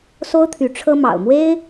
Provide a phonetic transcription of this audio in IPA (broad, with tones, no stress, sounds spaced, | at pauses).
s o˥ ʊ̯ t̪ʰ y˧˥ ʈ͡ʂʰ ɤ˥ m ɑ̰˨˩ ʊ̯ m w e˥ ɪ̯